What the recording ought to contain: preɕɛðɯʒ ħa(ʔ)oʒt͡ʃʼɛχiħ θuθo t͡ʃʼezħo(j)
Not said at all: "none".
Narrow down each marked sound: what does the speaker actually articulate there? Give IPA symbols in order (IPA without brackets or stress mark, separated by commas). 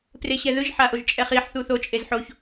ʔ, ç